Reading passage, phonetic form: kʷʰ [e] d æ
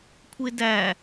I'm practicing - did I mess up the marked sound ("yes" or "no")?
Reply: no